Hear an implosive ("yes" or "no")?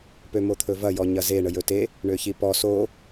no